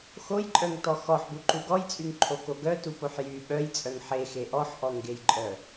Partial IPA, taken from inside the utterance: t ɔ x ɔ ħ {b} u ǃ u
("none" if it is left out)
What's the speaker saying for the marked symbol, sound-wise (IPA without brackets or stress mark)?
b